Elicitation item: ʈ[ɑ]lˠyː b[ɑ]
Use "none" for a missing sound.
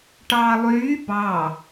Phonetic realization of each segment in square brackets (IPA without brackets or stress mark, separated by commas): ɑː, ɑ